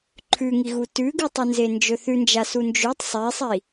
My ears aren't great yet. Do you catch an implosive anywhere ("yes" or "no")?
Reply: no